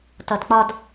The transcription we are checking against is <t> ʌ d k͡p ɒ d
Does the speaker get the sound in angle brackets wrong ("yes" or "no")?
no